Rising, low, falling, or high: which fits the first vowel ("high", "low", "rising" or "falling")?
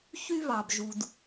high